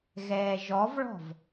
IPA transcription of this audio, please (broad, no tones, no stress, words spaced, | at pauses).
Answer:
ɣɛːʒɔvɭɔ̤v